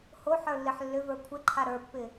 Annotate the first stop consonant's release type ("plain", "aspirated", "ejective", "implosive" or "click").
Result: aspirated